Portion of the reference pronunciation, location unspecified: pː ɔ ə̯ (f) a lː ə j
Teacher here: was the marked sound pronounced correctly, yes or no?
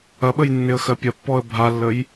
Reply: no